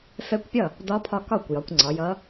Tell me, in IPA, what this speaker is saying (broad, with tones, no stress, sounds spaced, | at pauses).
f ɛ˧˥ kʷ pʲ ʌ˥˩ | d ɒ˧˥ pʰ ɒ˧ k ɒ˥˩ kʷ j ɒ˩˥ kʷ ŋ͡ǀ ɒ˩˥ j ʌ˧˥